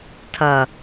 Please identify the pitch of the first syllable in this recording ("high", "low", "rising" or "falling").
low